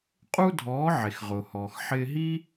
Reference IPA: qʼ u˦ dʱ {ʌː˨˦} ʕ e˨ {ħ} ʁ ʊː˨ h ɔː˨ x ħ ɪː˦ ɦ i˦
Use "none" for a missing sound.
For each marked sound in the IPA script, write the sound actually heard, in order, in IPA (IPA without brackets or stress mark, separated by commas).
ɔː˨˦, x